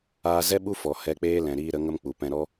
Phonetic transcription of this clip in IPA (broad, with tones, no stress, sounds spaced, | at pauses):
aː˧ z ɛ˦ ɓ u˦ f ɔ˨ h ɛ˧ k͡p eː˦ l ɛ̃˨ ɾ iː˧ ɾ ə˨˦ ŋ ə˦ m k͡p u˨ p ɛ̃˧ ɾ ɔ˦